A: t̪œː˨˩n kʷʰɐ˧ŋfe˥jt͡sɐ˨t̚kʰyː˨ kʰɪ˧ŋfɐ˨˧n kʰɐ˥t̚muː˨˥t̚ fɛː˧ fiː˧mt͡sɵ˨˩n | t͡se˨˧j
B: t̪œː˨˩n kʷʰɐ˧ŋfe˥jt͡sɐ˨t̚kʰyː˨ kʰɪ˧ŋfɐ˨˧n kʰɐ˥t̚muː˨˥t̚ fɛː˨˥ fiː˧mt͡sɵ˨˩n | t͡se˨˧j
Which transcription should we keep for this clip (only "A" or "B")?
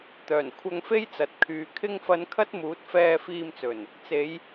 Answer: A